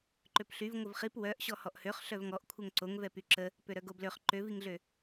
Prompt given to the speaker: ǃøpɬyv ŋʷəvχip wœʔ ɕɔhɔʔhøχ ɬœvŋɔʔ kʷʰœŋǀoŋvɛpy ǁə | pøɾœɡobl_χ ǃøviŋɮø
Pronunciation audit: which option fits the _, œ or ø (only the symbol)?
ø